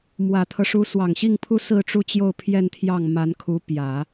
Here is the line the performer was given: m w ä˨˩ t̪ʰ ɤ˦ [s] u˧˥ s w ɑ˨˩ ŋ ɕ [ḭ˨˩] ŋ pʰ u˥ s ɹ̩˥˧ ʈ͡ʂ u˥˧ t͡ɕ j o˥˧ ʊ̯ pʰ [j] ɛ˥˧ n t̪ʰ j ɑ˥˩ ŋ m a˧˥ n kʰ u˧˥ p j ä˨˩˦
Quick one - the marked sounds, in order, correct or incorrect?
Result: incorrect: ʂ, incorrect: i˥˩, correct

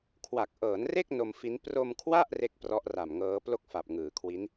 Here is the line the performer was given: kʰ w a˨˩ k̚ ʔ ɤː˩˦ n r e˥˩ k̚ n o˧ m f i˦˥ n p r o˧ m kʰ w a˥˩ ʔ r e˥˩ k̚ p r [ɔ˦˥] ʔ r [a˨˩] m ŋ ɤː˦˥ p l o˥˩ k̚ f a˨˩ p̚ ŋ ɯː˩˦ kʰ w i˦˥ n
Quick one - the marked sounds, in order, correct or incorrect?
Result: correct, correct

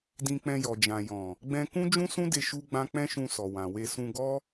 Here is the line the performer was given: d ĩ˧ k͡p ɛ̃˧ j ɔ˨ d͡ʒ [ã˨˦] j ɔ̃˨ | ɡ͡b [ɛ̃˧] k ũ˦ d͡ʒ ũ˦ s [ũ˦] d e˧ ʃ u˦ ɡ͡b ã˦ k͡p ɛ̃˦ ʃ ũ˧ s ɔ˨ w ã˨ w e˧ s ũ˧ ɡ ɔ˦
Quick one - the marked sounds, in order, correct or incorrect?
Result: incorrect: ã˨, correct, correct

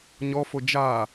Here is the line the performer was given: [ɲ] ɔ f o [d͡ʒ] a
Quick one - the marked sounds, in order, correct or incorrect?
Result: correct, correct

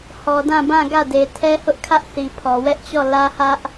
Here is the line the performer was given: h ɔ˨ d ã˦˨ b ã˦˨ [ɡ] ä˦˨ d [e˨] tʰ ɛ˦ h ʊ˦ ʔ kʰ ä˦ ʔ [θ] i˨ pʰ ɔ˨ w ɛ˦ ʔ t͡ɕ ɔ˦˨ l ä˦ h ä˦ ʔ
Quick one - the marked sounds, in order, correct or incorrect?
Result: correct, correct, correct

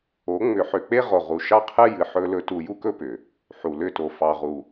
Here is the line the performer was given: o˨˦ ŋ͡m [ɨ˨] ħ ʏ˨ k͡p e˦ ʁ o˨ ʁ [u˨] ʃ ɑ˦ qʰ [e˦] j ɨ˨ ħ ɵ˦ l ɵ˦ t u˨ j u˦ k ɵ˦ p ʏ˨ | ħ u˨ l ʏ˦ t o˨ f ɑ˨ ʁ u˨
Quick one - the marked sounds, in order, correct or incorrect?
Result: incorrect: ʏ˨, correct, incorrect: ɨ˦

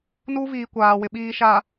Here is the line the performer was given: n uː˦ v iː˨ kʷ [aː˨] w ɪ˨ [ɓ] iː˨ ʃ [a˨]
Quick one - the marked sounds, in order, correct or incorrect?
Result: correct, correct, correct

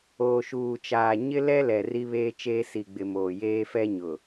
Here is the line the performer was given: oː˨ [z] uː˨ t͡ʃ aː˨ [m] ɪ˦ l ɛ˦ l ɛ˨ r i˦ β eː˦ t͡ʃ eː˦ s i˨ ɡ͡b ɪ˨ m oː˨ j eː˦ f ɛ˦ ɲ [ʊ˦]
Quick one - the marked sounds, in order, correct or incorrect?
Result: incorrect: ʃ, incorrect: ɲ, incorrect: ʊ˨

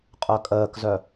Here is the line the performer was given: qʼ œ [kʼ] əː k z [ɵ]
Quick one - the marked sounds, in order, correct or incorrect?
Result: correct, incorrect: œ

